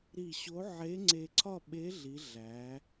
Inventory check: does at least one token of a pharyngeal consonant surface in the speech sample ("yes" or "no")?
yes